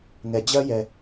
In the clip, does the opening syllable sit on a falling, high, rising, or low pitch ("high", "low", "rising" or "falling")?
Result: low